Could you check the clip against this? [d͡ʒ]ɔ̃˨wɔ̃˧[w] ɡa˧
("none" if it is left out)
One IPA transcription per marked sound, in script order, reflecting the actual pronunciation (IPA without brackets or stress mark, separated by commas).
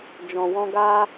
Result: d͡ʒ, none